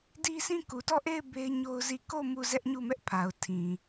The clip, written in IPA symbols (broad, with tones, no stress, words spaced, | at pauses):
di˦sĩ˦˨ ku˨tɔ˦˨ʔe˦˨ɪ̯ be˦ɪ̯ɲo˦ʊ̯zi˦˨ ko˦˨ mu˦˨zɛ˦ʔɲu˦˨mɛ˦ʔ pʰa˨ʊ̯ tʰĩ˨